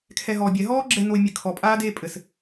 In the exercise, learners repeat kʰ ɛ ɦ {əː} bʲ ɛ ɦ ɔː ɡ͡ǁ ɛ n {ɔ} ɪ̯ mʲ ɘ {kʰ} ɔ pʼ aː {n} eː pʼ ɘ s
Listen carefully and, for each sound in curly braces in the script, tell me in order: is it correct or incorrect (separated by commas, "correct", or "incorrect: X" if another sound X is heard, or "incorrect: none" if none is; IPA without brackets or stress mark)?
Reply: incorrect: ɔː, incorrect: o, correct, incorrect: d